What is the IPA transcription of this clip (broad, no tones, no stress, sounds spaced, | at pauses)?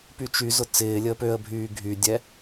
p y t͡ʃ y z ʊ t͡s ɪː lʲ əː p ø ə̯ bʱ yː ɡʱ y dʲ ɛ